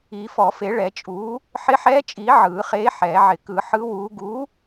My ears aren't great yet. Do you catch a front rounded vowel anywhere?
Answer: no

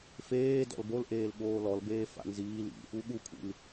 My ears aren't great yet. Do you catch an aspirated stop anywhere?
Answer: yes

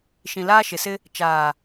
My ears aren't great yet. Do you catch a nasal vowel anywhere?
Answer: yes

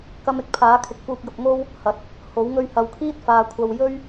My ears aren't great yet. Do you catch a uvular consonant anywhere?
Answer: no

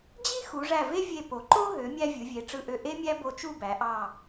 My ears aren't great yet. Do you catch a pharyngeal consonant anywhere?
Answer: no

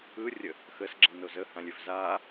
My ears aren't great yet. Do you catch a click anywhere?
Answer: yes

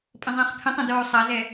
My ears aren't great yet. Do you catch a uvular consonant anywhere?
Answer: yes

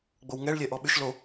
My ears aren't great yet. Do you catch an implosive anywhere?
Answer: yes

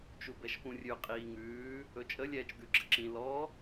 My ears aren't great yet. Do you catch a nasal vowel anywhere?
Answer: yes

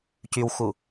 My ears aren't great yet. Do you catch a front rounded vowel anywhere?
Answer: yes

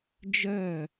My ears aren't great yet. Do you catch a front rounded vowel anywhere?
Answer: yes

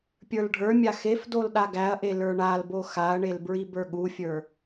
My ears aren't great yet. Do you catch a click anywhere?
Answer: no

